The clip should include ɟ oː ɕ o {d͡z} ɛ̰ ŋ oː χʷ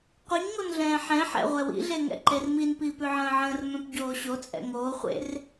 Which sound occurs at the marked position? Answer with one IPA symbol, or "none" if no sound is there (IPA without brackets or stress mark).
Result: t͡sʼ